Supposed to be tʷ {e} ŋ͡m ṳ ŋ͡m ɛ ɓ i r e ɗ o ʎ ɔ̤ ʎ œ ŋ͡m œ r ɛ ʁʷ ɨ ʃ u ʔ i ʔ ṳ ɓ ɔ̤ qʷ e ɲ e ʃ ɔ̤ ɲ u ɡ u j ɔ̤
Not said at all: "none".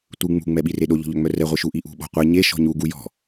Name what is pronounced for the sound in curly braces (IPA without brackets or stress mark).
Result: ɨ